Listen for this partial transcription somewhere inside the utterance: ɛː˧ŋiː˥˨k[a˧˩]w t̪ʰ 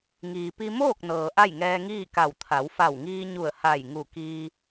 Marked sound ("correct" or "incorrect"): correct